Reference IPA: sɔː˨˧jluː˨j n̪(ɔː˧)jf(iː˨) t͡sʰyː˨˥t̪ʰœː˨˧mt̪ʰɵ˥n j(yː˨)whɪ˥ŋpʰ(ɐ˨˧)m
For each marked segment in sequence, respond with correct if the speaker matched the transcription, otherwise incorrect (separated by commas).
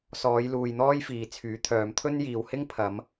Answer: incorrect, correct, incorrect, correct